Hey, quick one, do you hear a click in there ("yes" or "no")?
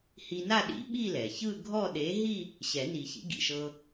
no